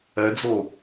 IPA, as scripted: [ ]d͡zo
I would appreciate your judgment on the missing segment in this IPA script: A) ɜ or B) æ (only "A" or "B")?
A